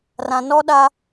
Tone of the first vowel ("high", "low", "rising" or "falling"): low